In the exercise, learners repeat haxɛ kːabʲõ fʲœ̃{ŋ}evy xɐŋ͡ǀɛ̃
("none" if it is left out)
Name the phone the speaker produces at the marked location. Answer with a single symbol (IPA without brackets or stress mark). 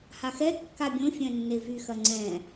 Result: nː